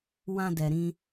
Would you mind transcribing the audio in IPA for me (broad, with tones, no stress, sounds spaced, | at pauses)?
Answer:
w ã˧ d ɛ˨ ɾ ĩ˧